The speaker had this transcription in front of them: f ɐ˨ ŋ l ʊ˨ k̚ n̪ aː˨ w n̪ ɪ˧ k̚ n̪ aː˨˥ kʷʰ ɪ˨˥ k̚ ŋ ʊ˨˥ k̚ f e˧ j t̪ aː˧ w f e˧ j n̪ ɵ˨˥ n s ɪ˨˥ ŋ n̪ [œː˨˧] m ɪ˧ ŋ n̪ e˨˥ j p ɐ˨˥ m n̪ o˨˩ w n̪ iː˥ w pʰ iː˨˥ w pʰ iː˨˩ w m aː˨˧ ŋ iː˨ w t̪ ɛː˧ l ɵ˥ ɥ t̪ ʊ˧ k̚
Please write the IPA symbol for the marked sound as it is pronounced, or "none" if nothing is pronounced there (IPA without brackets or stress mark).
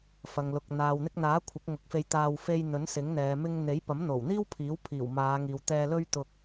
ɛː˨˧